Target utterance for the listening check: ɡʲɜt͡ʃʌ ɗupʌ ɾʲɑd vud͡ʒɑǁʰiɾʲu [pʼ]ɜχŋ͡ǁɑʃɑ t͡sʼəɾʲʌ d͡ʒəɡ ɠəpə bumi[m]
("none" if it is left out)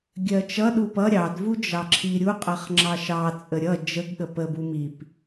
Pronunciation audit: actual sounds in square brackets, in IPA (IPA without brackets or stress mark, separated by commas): qʼ, p